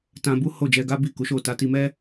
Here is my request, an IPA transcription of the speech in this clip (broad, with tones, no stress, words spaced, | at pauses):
tã˧bu˦ ho˦˨d͡ʒɛ˧ɡa˦ bi˦˨ku˨˦ʃo˦˨ ta˧ti˧mɛ˦